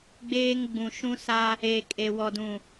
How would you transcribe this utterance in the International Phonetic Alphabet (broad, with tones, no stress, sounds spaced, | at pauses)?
ɡ͡b eː˦ ŋ ɡ͡b ũ˨ ʃ ũ˦ s a˦ | e˨ kʼ e˨ w ɔ˨ d ũ˨